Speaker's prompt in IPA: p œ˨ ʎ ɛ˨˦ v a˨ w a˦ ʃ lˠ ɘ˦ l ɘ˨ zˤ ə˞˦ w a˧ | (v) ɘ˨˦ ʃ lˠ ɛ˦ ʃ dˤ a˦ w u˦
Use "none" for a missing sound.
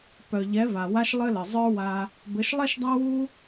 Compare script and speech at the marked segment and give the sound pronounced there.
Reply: b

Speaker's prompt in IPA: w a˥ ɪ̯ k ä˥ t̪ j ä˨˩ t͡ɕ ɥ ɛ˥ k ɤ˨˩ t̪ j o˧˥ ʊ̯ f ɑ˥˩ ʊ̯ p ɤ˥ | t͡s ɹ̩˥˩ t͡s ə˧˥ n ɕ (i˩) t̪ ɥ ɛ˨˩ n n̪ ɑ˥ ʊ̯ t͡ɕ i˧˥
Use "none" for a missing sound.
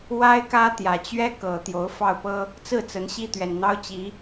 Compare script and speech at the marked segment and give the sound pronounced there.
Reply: i˥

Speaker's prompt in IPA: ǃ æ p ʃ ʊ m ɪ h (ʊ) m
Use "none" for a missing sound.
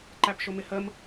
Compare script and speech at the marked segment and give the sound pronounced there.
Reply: ə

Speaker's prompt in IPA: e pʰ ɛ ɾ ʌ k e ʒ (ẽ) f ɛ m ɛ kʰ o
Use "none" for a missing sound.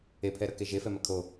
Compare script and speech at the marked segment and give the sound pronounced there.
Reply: e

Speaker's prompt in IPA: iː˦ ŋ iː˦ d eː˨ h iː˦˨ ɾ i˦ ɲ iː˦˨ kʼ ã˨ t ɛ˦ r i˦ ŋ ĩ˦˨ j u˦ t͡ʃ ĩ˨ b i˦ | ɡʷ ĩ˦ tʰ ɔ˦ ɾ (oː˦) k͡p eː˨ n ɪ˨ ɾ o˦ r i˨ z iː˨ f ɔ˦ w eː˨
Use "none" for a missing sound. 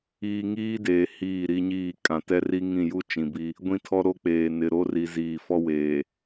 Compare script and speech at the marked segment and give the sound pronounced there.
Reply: o˦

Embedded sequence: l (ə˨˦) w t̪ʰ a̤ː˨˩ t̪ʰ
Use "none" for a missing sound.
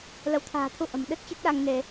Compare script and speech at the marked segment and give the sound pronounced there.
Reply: ə˨˦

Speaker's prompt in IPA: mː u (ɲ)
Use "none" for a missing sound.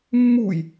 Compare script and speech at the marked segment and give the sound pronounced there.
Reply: j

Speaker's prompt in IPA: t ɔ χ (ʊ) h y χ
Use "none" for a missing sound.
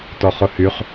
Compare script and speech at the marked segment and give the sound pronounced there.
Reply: ʊ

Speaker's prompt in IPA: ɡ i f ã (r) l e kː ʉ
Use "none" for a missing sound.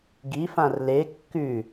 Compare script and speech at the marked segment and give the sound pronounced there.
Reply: r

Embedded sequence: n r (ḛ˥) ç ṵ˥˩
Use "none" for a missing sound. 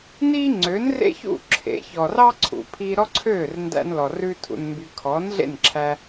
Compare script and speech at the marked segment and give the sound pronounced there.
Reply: ḛ˥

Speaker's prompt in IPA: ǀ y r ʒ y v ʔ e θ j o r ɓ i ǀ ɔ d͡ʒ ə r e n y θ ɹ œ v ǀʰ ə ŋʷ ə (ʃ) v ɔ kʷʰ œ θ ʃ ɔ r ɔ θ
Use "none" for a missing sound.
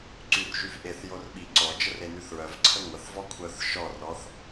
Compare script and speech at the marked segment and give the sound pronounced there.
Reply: θ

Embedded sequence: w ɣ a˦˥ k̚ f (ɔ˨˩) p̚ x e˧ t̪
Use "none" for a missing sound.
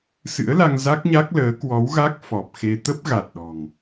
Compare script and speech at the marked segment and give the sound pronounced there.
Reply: ɔ˨˩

